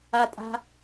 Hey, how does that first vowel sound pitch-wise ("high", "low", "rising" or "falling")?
high